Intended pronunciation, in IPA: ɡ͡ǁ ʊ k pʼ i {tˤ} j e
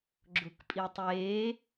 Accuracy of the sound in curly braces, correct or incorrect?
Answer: correct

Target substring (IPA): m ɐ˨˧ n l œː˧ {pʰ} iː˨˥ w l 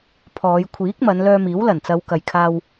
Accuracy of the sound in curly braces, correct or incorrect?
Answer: incorrect: m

